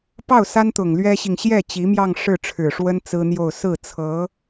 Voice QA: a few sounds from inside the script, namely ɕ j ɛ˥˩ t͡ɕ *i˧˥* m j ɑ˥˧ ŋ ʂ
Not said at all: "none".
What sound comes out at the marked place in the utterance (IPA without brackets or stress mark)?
i˧˥